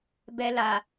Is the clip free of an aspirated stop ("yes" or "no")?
yes